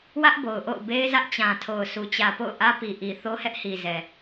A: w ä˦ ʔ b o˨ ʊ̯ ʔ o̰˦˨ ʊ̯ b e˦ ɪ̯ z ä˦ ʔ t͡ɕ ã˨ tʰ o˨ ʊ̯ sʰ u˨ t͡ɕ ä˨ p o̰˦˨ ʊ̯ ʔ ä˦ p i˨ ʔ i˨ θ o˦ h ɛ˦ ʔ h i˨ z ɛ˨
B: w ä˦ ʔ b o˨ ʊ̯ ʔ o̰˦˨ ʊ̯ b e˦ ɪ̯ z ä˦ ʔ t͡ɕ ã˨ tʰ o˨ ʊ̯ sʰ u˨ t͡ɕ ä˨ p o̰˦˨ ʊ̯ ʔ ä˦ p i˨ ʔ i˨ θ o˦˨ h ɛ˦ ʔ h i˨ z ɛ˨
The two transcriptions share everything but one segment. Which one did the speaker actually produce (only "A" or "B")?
A